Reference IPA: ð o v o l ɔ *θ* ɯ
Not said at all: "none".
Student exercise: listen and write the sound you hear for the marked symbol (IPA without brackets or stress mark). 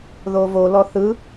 θ